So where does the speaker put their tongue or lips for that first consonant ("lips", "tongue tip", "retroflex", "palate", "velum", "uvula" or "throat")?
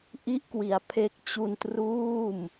throat